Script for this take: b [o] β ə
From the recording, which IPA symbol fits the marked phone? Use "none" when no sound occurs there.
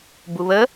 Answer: u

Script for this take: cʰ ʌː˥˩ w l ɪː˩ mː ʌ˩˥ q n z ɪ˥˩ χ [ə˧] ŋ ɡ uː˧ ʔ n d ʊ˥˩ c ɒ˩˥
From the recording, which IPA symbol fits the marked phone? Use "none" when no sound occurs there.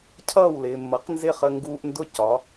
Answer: ə˧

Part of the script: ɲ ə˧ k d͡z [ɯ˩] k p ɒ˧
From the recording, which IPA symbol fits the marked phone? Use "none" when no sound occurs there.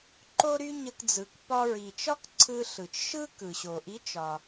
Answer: ɯ˩˧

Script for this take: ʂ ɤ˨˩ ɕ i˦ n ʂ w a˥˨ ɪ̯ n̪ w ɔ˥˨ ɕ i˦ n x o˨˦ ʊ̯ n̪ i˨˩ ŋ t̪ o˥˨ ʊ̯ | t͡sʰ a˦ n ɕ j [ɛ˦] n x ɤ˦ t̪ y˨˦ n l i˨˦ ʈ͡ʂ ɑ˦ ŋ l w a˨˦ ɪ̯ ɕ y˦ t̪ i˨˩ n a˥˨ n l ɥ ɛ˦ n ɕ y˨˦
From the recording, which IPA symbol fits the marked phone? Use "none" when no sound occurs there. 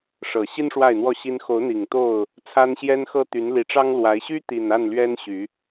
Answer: ɛ˦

